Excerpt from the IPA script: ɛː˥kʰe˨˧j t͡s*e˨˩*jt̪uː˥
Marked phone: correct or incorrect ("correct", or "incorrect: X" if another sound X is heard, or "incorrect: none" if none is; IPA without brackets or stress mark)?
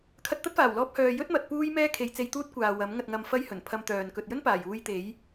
incorrect: e˧